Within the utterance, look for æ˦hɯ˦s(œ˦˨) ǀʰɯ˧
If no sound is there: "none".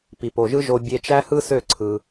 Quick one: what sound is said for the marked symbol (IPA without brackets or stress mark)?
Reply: ø˦˨